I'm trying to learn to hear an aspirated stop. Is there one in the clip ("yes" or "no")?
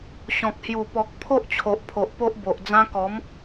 yes